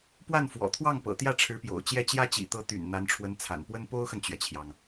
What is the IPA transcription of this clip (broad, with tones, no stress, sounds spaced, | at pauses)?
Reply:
p w a˥˩ n f w ɔ̰˨˩ t̪ʰ w ɑ˥˩ ŋ p ɤ̰˨˩ t̪ j ä˥˩ ʈ͡ʂʰ ɻ̩˧˥ p j o̰˨˩ ʊ̯ t͡ɕ j ɛ˥˩ t͡ɕ j ä˥ t͡ɕ ḭ˨˩ t̪ ɤ˧˥ t̪ y̰˨˩ n n̪ a˧˥ n ʈ͡ʂʰ w ə˧˥ n t͡sʰ a̰˨˩ n p w ə˥ n p o˥ ʊ̯ x ə˨ n t͡ɕ ɥ ɛ˩ t͡ɕʰ j ɑ˩ ŋ